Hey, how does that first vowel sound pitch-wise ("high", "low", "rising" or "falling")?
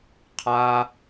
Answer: high